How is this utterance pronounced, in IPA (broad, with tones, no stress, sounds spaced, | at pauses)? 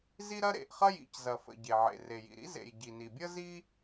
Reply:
z i˥ ɾ ɐ˥ ɾ ḛ˩ ʔ χ ɐ˥ j ḭ˩ c z ɐ˩ f ə̰˩ ɟ e˩ ʕ ḛ˩ r e˩ j ḭ˩ ɾ ḭ˥ z ḛ˩ j ɟ i˩ n i˩ bʲ ə˥ z i˥